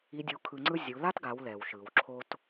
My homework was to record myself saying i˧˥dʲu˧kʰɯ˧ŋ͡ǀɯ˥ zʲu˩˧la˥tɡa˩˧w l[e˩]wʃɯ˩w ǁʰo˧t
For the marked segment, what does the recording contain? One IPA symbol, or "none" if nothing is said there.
ɛ˩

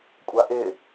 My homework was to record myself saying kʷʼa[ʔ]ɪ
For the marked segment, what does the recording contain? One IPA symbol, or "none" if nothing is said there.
ʔ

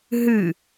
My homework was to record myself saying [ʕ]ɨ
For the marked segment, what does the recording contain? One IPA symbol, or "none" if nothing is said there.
ɦ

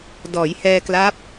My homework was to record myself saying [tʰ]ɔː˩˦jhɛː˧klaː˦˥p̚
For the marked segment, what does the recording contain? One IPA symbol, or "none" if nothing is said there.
d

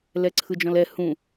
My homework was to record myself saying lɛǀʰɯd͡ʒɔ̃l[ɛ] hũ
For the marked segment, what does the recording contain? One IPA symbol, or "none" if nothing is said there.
ɛ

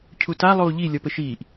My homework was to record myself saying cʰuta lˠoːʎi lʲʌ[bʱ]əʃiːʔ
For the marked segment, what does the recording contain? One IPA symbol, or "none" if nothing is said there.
p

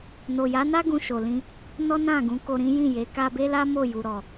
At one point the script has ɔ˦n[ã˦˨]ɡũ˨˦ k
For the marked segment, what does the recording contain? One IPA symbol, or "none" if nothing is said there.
ã˦˨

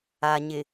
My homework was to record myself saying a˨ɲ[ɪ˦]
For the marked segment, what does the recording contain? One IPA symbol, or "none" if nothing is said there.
ɪ˨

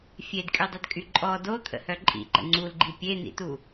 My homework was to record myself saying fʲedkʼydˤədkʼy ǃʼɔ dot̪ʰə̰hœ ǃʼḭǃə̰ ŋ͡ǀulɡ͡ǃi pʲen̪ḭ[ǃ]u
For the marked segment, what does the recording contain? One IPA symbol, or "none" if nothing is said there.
t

